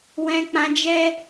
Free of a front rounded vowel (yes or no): yes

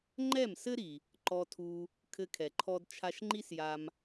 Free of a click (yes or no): no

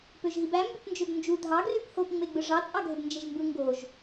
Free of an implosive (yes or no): yes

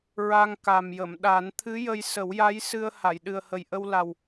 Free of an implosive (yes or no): no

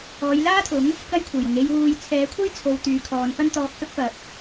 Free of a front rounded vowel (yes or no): no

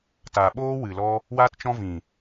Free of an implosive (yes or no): no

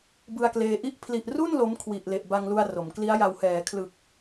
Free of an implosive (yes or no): yes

